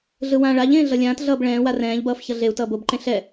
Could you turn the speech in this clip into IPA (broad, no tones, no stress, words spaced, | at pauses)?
ɮɯwãːɭaʎẽː ɮʌlʲãːtɮʌːb ɭɛ̃ːwa rɛ̃ːʎbʌːf çʌɮeu̯tʌː bobǃẽ ɬɛ